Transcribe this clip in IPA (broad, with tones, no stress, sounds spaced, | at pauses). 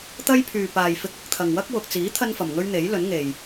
t̪ ɐ˥ j pʰ yː˨ p aː˨ j f ɪ˧ k̚ ɪ˧ k̚ t̪ʰ ɐ˨ ŋ w ɐ˥ k̚ w ʊ˨ k̚ t͡s iː˨˥ t̪ʰ ɐ˥ n f ɐ˨ m ŋ ɵ˥ ɥ n̪ e˨˥ j l ɵ˨˥ n ŋ e˨ j